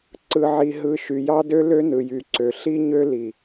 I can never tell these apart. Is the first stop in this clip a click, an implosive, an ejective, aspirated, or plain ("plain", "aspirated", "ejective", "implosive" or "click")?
click